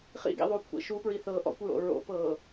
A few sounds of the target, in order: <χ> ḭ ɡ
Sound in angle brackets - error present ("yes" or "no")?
no